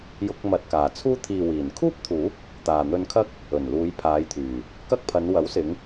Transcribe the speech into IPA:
j ʊ˥ k̚ m ɐ˧ t̚ k aː˨ t͡sʰ uː˥ t̪ʰ iː˨ w iː˨˩ n kʰ uː˥ p̚ t̪ʰ uː˨˥ p̚ | t̪ aː˨ n̪ ɵ˧ n kʰ ɐ˥ k̚ | ɵ˨˩ n l uː˨˧ j pʰ aː˨˧ j t̪ʰ yː˨˩ | k ɐ˥ k̚ pʰ ɐ˨˧ n w ɐ˨˥ w s ɪ˨˧ ŋ

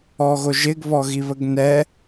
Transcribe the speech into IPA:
ɔ ɣ o ʒ ɪ ɡ β ɔ ɣ i β ə ɡ n ɛ

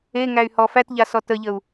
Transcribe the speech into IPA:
e ŋ æ y̯ h ɔ f æ t ʎ a s ɔ t ə ʎ ə u̯

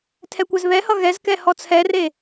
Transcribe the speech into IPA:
tʰ ɛ kʷ ɛ z β ɛ h ʌ ɣ ɛ z k ɛ h ɔ t͡sʰ ɛ r e

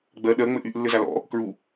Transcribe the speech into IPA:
ɡ͡b ɜ ɗ ɜ ŋ͡m ɘ ʔ y ʔ lː ɘ z a l ɔ̰ | k ɹ u

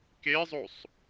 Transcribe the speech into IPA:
k e zˤ o sˤ

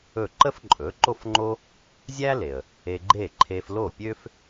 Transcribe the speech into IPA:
ɵ˥˩ ǃ ə˥ f ǃʼ ɵ˩˥ ǃ o˥ f ŋ͡ǃ o˥ | zʲ æ˥ l e˩ ə̯ | e˧ ɡ͡ǃ e˥˩ ǃʰ e˧ f l o˥˩ pʲ ø˥ f

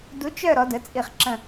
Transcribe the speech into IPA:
d u˧˥ t͡ʃ œ˥˧ ɾ ɔ˧˥ d ə˧˥ t͡sʼ i˥˧ χ ǁ ə̃˥˧

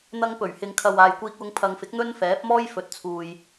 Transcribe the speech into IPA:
n̪ ɐ˧ ŋ p ɵ˨˩ ɥ h ɪ˨ ŋ kʰ ɐ˨ w aː˨ j kʷ iː˧ k̚ w ʊ˧ ŋ pʰ ɐ˨ ŋ f ɪ˨˥ k̚ n̪ ɵ˥ n f ɛː˨˥ p̚ m ɔː˥ j f ɵ˨ t̚ t͡sʰ uː˨ j

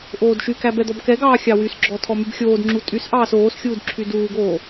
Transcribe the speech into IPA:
ʔ oː d ʃ y k æ b ɛ d̪ ɔ b k ɛ ɡ ɑː xʲ ɑ w y s ɡ͡ǁ ɔ tʰ ɔ m y b xʲ oː d ŋ͡ǁ u tʼ y s ʔ ɑː s oː s xʲ uː d ǁʰ y d uː ɡ oː

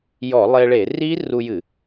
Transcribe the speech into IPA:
j ɔ˧˩˧ lˠ e˧ ɭ e˧˩˧ r i˦˥ r u˧ j ɨ˧˩˧

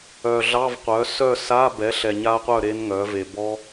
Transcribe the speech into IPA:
œ˨ ɮ ɑ˧˥˧ v qʷ œ˩˥ s œ˥˨ s a˧˥˧ b ɛ˩˥ ɬ ɛ˨ ɲ a˦˥ qʷ œ˥˨ ɾ e˦˥ n ŋ œ˩˥ v e˨ b ɔ˦˥

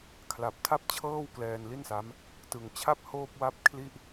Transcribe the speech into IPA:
kʰ l a˨˩ p̚ tʰ a˥˩ p̚ t͡ɕʰ ɤː˥˩ w k l ɛː˧ n l i˥˩ n s a˦˥ m | t ɯ˨˩ ŋ t͡ɕʰ a˥˩ p̚ h oː˥˩ p̚ w a˥˩ p̚ kʰ l i˥˩ ʔ

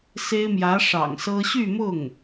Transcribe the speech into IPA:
s e˥ ɪ̯ m j ä˧˥ ʂ ɑ̰˨˩ ŋ s ɤ˥ ɕ y˥˧ m ʊ˥˩ ŋ

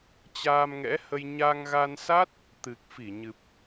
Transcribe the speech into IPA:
t͡ɕ aː˧ m ŋ ɛ̰˧˥ h ə˧ j ɲ a˧ ŋ ɣ a˧ n s a˦˥ t̚ | t̪ ɨ˨˩ k̚ f i˧˩ ɲ ɨ˨˩ p̚

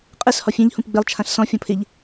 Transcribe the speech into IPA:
qʼ ɘ s h ɔ fʲ ɛ̃ ʎ h ũ p ɡ͡b ɪ lˠ t͡ʃʰ ã ɬ s ɔ̃ fʲ ɔ̃ pʰ ɪ ʎ

